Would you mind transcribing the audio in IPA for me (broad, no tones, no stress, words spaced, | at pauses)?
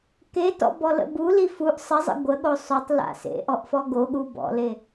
ketɔ̰bɔlə̰ buli fuʔ sˤəzˤə̰ ɡʷəɠo sˤotˤla̰ sḛʔɔʔfɔ ɡoɠu bɔ̰le